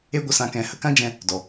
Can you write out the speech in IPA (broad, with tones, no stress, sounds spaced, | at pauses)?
e˦ ɡʷ ə˧ s ã˧ k ɛ̃˧ h ə˦ k ã˦ d͡ʒ ɛ̃˧ | d ɔ˨